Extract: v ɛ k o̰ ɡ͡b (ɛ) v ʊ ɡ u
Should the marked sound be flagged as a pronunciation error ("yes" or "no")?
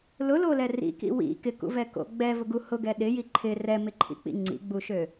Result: no